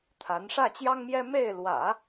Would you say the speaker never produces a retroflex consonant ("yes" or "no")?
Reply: no